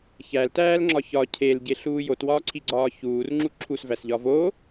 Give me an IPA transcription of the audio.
ç æ l t æː l ŋ͡ǁ ɒ ç ɒ cʰ e l ɟ e ɬ uː j o t w ɒː ǀʰ i ɡ͡ǀ ɒː ç uː r ŋ͡ǁ u ǁʰ u s v æ s ʎ ɒ v o

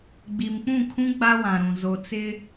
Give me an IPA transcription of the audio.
ɡ͡b i˨ m k͡p ũ˦˨ kʰ ũ˦ ɡ͡b a˦ w ã˨ ɾ ũ˨ z o˨ t͡s ɪ˦

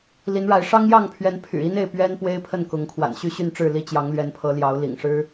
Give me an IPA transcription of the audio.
l i˨˦ n ɻ a˨˦ ɪ̯ ʂ ɑ˦ ŋ j ɑ˥˨ ŋ pʰ ɥ ɛ˨˦ n pʰ y̰˨˩ i˦ n e˥˨ ɪ̯ p ɥ ɛ˦ n p w e˦ ɪ̯ pʰ ə˥˨ n k ʊ˨˦ ŋ kʰ w a̰˨˩ n ɕ y˥˨ ɕ y˥˨ n ʈ͡ʂ ɻ̩˥˨ l i˥˨ t͡ɕ j ɑ˨˦ ŋ l ɥ ɛ˨˦ n pʰ ɤ˨˦ l j ɑ˨˦ ʊ̯ l ḭ˨˩ ŋ ʂ ɻ̩˦

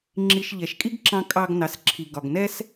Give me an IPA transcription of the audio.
ŋ͡ǁ i˧ ʃ ʎ ɛ˨ ʃ kʼ i˦ ɡ ǁ ɑ̃˧ kʼ ɑ˧ ɡ n ɑ˨ s ǁʰ i˨ ɡ ɒ˨ ɡ n ɛ˦ s

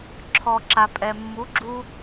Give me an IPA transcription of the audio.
ǁʰ ɔ˨ ǁ a˨ pʼ ɛ˨ mː u˨˦ ɡ͡ǁ u˧

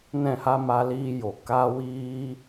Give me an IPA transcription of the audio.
n ɛ̃˦˨ h a˦ m a˧ l iː˧ j o˨ k a˦ w iː˦

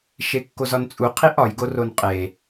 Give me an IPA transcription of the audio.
ʃ e kː o z ɒ n t͡sʼ u qʰ i ʔ ɒ j ɡ o r o n qʼ e

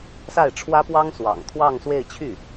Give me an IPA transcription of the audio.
s a˥˩ ɪ̯ ʈ͡ʂʰ w ä˥ p w ɑ˥ ŋ s w ɑ̰˨˩ ŋ t̪ʰ w ɑ˥˧ ŋ s w e˥˧ ɪ̯ t͡ɕʰ y˥˩

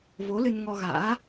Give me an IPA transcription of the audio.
v o˨˦ l ɨ˧ n ŋ ɔ˧ ɣ a̰ː˧˥

